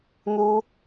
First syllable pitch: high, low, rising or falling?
high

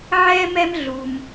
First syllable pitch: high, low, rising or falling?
high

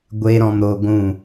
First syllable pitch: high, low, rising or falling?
high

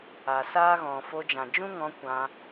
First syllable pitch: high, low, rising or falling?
low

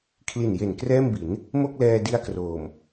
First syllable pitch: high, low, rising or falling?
low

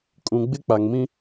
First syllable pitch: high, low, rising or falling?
low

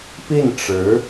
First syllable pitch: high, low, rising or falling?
falling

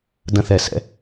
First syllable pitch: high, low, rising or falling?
high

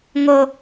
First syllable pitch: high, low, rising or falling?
low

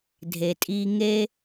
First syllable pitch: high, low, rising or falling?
low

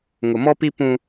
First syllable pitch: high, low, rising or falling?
low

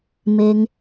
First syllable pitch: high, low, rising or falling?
low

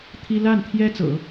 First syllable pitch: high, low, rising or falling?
high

